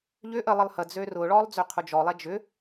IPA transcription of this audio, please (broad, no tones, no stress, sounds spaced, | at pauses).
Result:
ʎ ʏ ʔ ə lˠ ə lˠ h ə d͡z ø r ʊ ɭ ɔ lˠ d͡z ø qʰ ʊ d͡ʒ ɔ lˠ ɛ d͡ʒ ʏ